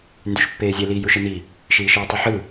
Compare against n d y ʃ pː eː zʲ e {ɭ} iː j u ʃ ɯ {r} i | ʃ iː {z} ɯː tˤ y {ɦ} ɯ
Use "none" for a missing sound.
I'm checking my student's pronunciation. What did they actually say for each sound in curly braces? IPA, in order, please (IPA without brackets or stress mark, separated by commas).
l, n, ʃ, ħ